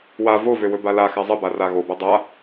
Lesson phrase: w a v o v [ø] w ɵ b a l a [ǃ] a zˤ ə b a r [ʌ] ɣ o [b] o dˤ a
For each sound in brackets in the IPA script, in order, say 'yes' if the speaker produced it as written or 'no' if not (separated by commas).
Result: yes, no, no, yes